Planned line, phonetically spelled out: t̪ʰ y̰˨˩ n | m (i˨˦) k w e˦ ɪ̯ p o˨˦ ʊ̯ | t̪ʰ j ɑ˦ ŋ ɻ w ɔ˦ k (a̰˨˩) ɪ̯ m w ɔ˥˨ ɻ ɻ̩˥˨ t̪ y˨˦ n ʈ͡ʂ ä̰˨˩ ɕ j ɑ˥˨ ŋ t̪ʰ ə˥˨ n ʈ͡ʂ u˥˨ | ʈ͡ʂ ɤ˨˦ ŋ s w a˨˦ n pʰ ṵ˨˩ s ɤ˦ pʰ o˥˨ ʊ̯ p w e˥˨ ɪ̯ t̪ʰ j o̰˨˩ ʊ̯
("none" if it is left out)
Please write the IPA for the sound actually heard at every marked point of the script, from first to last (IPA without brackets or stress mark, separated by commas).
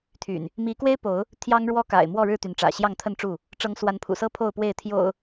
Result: i˨˦, a̰˨˩